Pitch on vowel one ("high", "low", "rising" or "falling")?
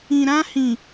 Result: low